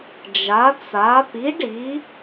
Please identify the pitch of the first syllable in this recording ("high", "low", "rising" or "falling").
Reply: rising